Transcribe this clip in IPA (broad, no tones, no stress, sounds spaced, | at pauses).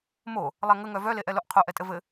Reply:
m o | lˠ æ ŋ ə ŋ œ v œ l e ʔ ɛ l o ʔ qʰ o ʔ ɛ tʼ ɘ v ɘ